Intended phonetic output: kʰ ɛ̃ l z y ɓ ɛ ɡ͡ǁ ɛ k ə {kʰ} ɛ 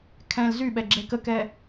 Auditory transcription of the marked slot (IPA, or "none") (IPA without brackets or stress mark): k